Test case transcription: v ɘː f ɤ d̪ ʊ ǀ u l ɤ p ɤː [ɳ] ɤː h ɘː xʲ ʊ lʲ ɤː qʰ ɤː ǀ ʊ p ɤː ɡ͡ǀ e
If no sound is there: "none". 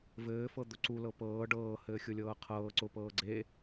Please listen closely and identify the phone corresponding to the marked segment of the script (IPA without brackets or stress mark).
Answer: ɖ